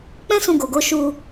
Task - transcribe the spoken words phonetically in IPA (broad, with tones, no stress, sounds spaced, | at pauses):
k͡p ɛ̃˦ s ũ˧ ɡ o˨ ɡ o˨˦ ʃ u˧